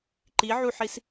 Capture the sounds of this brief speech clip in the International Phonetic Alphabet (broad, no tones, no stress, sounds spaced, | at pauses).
ǃ i ʕ u ħ i s